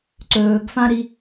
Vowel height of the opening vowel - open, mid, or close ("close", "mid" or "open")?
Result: mid